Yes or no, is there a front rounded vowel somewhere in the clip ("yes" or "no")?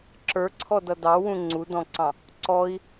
no